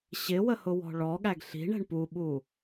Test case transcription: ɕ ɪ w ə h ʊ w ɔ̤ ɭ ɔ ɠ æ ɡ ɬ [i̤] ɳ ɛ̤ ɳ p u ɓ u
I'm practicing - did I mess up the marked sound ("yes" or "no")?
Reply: no